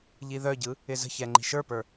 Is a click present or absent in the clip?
present